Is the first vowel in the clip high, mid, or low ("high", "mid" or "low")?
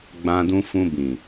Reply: low